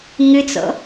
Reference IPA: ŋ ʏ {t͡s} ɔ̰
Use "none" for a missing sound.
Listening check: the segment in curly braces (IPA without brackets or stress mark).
t͡s